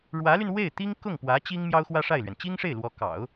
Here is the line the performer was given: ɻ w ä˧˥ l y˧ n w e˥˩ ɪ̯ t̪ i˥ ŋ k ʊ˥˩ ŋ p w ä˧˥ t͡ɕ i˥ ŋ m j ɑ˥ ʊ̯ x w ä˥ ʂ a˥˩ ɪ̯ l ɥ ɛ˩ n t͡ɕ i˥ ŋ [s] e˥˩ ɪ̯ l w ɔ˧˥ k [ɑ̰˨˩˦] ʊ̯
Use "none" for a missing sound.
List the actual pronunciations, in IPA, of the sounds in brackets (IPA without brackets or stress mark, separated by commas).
ʂ, ɑ̰˨˩˦